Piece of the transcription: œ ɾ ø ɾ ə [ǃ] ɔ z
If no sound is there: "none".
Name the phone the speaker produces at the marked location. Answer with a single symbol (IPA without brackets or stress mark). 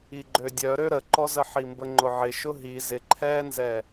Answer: ǃ